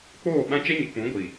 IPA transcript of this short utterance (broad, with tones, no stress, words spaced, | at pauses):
k͡poː˦˨ ɓã˦ t͡ʃɛ˦ɲɪ˨k͡pũ˨˦ ɡʷi˨